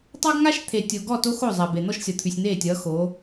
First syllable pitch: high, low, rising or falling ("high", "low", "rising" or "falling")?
high